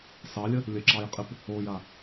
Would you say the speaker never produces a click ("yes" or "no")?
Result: no